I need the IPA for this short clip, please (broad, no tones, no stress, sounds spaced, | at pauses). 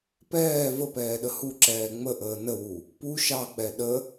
p ɛː v ə p ɛː ɗ ə h u ǁ ɛː ŋ͡m ə ʔ əː n ə w u | p u ʃ ɑ k͡p ɛ ɗ ə